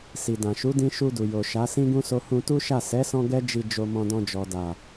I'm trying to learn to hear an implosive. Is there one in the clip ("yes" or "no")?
no